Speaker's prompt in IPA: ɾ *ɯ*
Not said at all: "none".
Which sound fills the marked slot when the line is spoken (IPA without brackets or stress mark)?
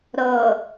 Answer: ɤ